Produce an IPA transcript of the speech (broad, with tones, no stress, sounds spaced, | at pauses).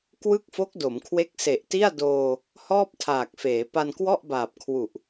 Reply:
k w ɯ˥˩ k̚ f o˦˥ k̚ d o˩˦ m kʰ w e˦˥ k̚ s e˨˩ ʔ t i˥˩ a̯ d oː˧ | h ɔː˥˩ p̚ tʰ aː˨˩ k̚ f eː˩˦ p a˧ n k w ɔ˥˩ ʔ b aː˨˩ p̚ kʰ w u˨˩ ʔ